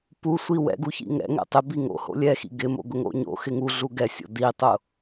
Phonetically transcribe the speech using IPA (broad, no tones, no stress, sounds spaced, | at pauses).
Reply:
p u sʷ i w ɛ̰ ɡ u ç ḭ ŋ ɛ̰ ŋ ɛ̰ tˤ ɪ b i ŋ o̰ h o̰ lʲ ɛ x ḭ ɡ ɪ m o̰ ɡ ʊ ŋ o̰ ɲ o̰ x ɪ ŋ u ɮ u ɡ ɛ sʲ o̰ d i tˤ ʊ